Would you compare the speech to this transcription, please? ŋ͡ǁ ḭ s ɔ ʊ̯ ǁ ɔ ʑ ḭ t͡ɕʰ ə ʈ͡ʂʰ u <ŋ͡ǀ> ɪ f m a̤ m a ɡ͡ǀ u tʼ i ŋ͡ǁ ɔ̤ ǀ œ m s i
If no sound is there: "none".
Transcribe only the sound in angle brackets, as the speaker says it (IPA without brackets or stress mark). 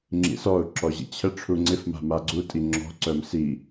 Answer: ŋ͡ǀ